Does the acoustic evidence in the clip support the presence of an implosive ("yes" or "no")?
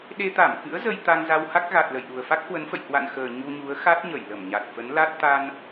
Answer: yes